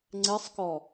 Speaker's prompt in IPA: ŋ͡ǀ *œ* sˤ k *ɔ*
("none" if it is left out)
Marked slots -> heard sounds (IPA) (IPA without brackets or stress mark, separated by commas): ɛ, ɔ